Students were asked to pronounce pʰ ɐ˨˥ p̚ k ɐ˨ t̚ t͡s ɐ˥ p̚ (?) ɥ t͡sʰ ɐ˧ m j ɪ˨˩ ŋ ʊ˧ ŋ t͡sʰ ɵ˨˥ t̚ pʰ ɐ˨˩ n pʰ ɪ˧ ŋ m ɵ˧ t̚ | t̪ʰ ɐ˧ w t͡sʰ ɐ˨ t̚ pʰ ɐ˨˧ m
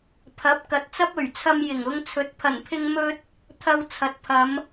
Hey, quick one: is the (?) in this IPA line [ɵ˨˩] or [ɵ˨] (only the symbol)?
ɵ˨˩